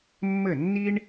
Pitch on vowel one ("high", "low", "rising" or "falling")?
falling